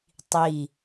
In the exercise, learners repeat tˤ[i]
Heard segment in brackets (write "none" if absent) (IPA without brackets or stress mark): i